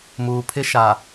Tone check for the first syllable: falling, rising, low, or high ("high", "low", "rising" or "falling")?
low